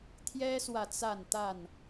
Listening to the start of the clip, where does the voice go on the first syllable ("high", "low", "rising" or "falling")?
high